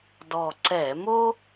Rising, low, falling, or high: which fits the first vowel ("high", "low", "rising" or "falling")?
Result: low